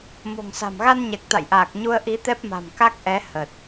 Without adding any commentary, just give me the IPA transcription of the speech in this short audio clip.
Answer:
m o̤˨˩ ŋ s a̤˨˩ m ɣ a˧ n ɲ ɛ˨˩ k̚ t̪ a̰˧˨ j ʔ aː˨˩ k̚ ɲ u˧ ə̯ ʔ i˨˦ t̪ ɛ˦˥ p̚ m a̤˨˩ m k a˦˥ k̚ ʔ ɛ˨˦ h ə˨˩ t̚

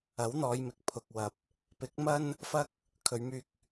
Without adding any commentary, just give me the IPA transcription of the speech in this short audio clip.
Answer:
ɐ˨˥ w n̪ ɔː˨˧ j m ɪ˨ k̚ pʰ ʊ˨ k̚ w ɐ˨ p̚ | p ɪ˨˥ k̚ m ɐ˥ n | f ɐ˥ k̚ | kʰ ɵ˨˧ ɥ m yː˧ k̚

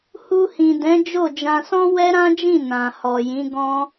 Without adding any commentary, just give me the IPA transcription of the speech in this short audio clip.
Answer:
h u˧ h ĩ˨ d ɛ̃˨˦ d͡ʒ o˦˨ d͡ʒ ã˧ s ɔ̃˦ w ɛ˦ ɾ ã˦ d͡ʒ ĩ˦˨ n ã˨ h ɔ˨ j ĩ˨˦ ɡ ɔ̃˦

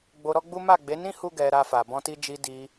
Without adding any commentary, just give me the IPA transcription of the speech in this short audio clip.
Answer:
ɡ͡b o˧ ɾ ɔ˦ ɡ͡b u˦ m a˦˨ ɡ͡b e˨˦ n ĩ˦ h u˦ ɡ ɛ˧ ɾ a˧ f a˨ b ɔ̃˧ t i˧ d͡ʒ i˧ d i˧

